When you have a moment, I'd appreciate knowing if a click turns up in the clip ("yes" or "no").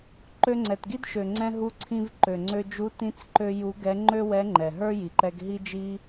yes